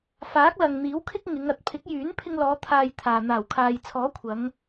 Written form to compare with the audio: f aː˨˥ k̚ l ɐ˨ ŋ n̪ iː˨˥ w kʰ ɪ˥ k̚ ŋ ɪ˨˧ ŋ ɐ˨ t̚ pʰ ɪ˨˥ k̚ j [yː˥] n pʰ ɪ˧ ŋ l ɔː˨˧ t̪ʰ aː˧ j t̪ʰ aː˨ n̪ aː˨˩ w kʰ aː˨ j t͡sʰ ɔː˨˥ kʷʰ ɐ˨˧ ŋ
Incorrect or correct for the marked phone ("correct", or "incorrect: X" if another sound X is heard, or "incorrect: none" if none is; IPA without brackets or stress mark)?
incorrect: yː˨˥